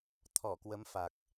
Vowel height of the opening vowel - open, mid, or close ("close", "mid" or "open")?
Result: mid